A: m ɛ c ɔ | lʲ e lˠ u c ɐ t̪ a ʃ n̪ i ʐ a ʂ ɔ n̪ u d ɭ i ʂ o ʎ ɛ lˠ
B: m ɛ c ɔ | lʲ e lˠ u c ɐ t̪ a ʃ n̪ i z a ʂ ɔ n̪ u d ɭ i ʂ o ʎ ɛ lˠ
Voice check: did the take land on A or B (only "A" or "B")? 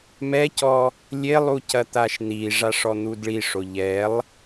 A